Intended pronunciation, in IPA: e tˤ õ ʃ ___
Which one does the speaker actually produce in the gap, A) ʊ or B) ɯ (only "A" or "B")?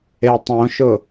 A